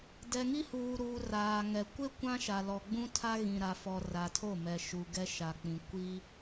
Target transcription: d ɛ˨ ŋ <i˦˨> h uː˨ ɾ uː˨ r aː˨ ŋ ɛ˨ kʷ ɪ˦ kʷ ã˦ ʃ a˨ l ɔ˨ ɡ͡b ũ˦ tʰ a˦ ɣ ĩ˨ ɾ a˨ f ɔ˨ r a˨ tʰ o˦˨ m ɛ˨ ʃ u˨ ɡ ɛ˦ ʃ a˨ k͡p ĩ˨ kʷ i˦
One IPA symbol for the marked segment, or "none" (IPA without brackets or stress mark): i˦